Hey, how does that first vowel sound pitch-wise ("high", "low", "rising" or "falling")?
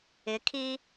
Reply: rising